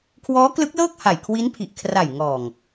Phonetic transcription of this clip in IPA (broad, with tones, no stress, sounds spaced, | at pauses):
kʰ w ɔː˦˥ k l ɯ˦˥ k̚ l ɤː˥˩ k̚ h a˨˩ j kʰ w i˦˥ n pʰ i˨˩ ʔ kʰ r a˨˩ j ŋ ɔː˨˩ ŋ